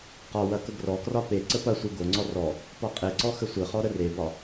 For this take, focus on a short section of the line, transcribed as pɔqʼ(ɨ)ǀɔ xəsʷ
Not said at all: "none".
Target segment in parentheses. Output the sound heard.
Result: e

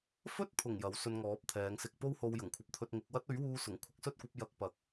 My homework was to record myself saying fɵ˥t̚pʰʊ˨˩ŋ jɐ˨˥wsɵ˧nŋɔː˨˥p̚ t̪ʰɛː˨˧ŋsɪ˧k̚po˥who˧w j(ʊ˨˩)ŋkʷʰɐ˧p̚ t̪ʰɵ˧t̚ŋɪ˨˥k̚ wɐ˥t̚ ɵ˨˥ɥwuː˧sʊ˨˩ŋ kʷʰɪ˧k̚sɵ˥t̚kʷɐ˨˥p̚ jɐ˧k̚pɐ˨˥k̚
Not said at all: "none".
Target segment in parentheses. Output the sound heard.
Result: ʊ˨˩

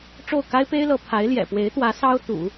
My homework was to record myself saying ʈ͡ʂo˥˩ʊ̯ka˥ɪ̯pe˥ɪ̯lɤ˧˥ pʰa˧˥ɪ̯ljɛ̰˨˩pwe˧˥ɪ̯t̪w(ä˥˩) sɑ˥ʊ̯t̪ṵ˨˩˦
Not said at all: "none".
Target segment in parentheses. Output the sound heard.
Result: ä˧˥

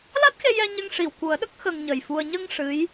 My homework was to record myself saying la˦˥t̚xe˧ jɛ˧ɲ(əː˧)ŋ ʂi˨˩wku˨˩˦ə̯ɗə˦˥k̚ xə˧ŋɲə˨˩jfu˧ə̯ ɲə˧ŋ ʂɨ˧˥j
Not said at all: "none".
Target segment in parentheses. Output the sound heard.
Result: ə˧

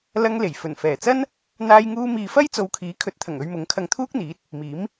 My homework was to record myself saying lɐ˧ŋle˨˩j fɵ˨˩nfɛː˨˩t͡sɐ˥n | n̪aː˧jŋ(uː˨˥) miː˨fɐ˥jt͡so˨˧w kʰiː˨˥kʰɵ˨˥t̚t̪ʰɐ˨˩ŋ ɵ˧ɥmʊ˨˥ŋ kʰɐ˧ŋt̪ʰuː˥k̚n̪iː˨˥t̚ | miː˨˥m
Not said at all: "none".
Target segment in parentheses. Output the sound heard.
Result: uː˧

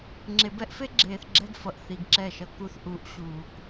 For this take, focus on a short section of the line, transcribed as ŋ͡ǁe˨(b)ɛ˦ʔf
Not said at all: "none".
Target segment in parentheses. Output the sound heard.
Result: b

